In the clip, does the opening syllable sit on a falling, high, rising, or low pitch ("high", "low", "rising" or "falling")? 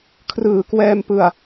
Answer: low